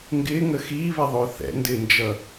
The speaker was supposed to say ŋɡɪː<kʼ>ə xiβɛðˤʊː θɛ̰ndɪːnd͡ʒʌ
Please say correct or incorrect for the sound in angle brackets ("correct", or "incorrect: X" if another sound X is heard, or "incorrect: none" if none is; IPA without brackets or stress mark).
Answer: incorrect: ŋ